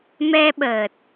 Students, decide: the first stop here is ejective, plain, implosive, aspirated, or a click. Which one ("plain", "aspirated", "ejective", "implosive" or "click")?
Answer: implosive